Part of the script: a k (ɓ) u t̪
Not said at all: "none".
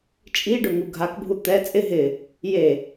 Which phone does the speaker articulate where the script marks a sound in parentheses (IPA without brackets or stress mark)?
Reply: bʱ